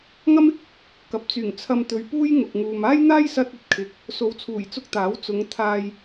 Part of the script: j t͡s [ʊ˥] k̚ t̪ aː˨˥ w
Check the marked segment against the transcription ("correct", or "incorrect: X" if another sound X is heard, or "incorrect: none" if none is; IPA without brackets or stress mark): incorrect: ʊ˧